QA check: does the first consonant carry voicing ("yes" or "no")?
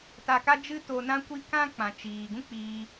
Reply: no